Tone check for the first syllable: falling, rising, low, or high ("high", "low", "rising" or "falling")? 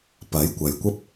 rising